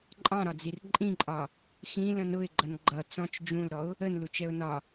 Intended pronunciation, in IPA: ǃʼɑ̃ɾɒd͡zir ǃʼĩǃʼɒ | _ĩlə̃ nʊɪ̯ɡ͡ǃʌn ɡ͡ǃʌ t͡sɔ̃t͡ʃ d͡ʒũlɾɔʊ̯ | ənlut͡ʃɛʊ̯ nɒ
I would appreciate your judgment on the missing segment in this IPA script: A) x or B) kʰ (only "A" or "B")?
A